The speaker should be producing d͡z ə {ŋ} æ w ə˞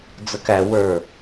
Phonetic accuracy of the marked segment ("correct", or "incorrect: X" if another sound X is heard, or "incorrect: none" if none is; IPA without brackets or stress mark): incorrect: k